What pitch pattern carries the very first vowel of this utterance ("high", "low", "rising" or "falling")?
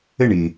falling